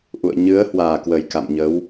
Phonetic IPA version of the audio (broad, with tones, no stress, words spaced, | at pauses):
ʔṵ˧˨ə̯ɲɨ˨˦ə̯hwaː˨˩kwə˨˩j ka̰˧˨mɲə˨˦w